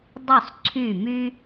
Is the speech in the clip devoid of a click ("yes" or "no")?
no